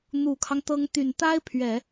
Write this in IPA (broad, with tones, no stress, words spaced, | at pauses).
n̪u˨˩kʰɑ˦ŋt̪ɤ˧˥ŋ t̪y˨˩nt̪a˥ɪ̯pʰɥɛ˨˩˦